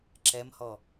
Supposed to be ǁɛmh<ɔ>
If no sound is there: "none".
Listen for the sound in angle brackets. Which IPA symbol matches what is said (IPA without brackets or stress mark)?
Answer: ɔ